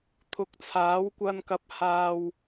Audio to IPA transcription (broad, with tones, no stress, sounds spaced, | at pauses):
t̪ʰ ʊ˨˥ k̚ t͡sʰ aː˨˥ w kʷ ɐ˧ n k ɐ˨˥ p̚ h aː˨ w